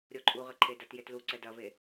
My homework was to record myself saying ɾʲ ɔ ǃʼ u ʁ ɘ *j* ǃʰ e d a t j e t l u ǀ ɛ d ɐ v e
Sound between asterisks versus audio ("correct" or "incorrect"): incorrect